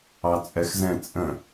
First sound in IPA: ɑ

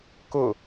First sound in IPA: k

